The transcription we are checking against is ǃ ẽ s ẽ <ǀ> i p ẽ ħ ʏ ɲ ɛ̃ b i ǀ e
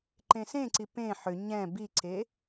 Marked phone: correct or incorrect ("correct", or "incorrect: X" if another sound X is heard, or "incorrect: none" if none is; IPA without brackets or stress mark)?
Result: correct